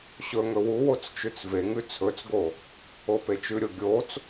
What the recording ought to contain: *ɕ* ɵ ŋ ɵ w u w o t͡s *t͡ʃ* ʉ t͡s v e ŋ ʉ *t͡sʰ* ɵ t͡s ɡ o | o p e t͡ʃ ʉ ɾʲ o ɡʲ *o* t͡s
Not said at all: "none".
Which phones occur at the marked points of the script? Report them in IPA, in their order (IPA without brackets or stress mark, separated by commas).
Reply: ɕ, t͡ʃ, t͡sʰ, o